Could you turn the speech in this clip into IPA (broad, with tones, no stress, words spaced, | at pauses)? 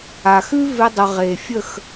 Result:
a˨xʉ˦ ve˧dˤə˨ ʁe˨fʲə˦˨x